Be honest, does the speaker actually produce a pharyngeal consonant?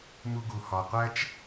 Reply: no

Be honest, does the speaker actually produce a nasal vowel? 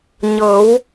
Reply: no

